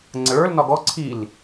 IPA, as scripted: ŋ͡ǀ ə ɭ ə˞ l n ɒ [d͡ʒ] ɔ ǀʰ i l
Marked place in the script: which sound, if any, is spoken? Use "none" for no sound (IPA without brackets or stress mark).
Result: ɡ